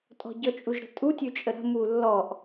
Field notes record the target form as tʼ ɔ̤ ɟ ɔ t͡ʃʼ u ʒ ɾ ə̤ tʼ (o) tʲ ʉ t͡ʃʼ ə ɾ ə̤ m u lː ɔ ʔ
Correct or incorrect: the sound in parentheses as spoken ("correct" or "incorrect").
incorrect